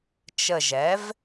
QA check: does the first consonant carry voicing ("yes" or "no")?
no